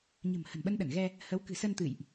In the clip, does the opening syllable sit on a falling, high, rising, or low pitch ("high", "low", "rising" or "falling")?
low